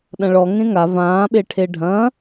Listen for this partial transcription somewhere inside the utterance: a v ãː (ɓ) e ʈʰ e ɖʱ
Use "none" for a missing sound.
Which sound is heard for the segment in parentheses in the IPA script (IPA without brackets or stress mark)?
ɓ